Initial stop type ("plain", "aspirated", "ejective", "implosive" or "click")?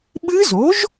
implosive